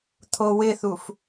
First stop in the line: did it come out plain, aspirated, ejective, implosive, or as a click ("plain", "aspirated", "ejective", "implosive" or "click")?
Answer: aspirated